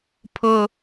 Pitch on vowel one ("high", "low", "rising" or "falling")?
high